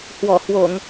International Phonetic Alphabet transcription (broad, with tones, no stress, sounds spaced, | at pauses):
h w ɔ˧˩ h w o˧˩˨ ŋ